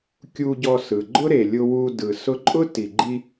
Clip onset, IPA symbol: kʲ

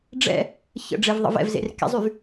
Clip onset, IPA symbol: ɖ͡ʐ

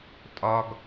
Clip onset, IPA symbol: tʼ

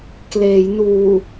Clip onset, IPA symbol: k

